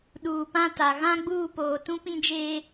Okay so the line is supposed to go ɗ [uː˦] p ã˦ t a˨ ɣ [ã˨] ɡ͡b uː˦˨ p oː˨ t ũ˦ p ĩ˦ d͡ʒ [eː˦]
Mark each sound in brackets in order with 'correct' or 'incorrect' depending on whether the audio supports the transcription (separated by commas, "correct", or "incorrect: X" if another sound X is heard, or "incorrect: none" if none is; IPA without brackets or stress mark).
incorrect: uː˨, incorrect: ã˦, correct